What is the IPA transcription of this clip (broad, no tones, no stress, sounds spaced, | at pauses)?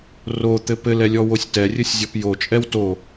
r o t̪ ɘ p ɘ l ɛ lʲ ɔ w o sʲ t ɛ rʲ ɘ sʲ zʲ ɔ p j o t͡ʃʼ ɛ w t o